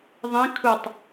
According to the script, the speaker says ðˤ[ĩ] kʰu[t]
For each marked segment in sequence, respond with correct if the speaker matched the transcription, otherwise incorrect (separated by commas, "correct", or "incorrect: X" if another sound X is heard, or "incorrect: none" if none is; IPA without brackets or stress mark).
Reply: correct, incorrect: tˤ